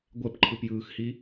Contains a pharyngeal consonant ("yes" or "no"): no